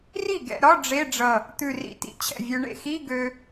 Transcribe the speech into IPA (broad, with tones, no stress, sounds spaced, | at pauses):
r i˥˩ ɡ ɛ̰˧ ɾ ɒ˧˥˧ ɖ͡ʐ e˧˥˧ ɖ͡ʐ ʌ˧˩ | t̪ ʉ˧˩ r ḭ˧ t ḭ˧ t͡ɕʰ ɛ̰˥˩ vʲ ø˧ ɳ ḛ˥˩ x i˧˥˧ ɡ ø˧